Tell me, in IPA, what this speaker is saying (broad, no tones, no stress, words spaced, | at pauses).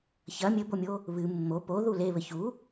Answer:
çɐ mʲɘbomʲo | βɨ mːo po ðuleβɘ çu